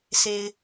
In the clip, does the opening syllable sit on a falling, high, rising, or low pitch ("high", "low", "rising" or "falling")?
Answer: low